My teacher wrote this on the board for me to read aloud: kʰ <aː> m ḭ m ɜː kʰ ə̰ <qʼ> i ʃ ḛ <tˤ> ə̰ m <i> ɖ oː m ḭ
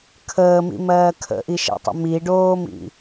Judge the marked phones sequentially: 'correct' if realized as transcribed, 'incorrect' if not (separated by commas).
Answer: incorrect, incorrect, correct, correct